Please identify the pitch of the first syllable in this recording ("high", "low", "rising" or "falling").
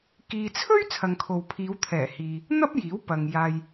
low